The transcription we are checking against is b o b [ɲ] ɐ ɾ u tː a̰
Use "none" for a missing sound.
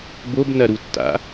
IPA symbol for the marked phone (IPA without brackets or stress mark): n